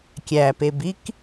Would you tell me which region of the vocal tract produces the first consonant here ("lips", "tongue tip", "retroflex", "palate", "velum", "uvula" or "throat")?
velum